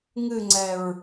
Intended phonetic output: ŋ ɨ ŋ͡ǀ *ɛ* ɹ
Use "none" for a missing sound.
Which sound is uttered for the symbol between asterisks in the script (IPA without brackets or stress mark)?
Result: ɛ